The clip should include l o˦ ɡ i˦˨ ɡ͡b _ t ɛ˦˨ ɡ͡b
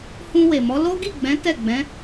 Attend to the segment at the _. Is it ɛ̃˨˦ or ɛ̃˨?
ɛ̃˨˦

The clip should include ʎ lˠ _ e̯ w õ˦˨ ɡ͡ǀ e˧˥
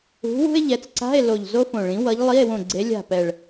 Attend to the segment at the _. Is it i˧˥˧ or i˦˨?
i˧˥˧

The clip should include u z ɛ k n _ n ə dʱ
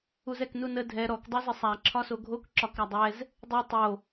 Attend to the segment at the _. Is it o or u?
u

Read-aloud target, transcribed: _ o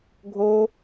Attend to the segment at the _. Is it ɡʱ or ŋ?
ɡʱ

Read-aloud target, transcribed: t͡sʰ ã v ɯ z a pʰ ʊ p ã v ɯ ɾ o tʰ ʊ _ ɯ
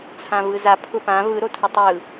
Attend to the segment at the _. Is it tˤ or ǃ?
tˤ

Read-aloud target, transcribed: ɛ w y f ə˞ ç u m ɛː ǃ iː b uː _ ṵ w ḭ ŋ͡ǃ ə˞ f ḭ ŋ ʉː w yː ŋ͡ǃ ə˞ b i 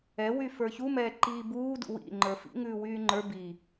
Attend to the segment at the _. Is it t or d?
d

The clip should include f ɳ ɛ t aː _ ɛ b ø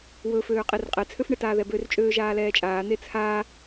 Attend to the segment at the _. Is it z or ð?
ð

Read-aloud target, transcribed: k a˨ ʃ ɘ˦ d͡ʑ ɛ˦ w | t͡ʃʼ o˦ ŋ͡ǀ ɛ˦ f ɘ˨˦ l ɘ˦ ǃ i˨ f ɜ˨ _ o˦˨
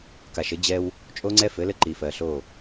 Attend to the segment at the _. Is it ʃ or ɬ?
ɬ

